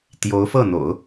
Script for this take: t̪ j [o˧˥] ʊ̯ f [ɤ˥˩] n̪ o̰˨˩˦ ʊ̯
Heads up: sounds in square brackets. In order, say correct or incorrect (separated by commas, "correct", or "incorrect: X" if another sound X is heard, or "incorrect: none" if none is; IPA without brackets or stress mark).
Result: correct, correct